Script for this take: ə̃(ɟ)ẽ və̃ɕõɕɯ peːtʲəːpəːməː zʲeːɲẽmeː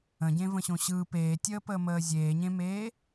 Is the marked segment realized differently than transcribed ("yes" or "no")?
no